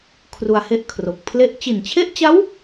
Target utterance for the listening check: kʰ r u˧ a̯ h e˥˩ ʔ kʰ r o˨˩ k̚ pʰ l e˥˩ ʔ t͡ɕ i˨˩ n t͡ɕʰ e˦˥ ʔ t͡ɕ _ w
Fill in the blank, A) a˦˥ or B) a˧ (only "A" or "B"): A